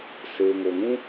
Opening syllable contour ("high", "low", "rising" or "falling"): low